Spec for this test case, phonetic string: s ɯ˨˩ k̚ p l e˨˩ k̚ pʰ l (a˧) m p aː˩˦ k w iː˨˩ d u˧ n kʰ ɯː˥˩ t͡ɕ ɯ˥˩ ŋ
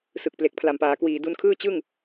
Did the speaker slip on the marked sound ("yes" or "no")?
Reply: yes